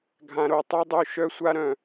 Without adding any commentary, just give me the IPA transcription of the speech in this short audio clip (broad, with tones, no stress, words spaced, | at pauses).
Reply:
ɡʱã˨ɾo˨tˤy˦dˤu˧ ʃœ˦sʷa˦ɾœ̃˨